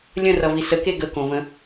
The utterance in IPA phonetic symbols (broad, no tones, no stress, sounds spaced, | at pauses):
lʲ ə̃ r ʌ v i s ə k e ɡ ə k õ v ə̃